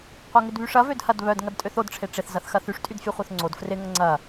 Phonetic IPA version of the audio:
qʷ œ ŋ ɪ d β y ʂ ɐ v ø d h ɐ d β œ d ŋ ɐ d tʼ ø θ o d ʈ͡ʂʰ e ʈ͡ʂ ɪ θ z ɐ θ x ɐ θ y ʂ tʼ y d fʲ œ χʷ œ θ ŋ͡ǀ o d f r ɪ ŋ ɐ ŋ͡ǀ ɐ

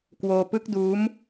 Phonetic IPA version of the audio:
k w oː˧ p ɯ˦˥ k̚ d uː˦˥ m

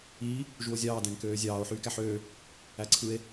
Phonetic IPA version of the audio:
iː | ʒ u o̯ zʲ ɑː d æ̃ ŋ k øː zʲ ɑː o̯ ħ yː k æ ħ øː | æ ǀʰ ɯ e̯

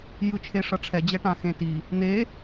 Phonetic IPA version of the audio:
j ɯ t͡ʃʰ e ʂ ʌ ʈ͡ʂʰ ɛ d͡ʑ ɛ ʈ ã x ẽ t i | n̪ e

